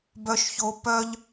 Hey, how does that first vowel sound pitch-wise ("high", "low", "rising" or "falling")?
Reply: low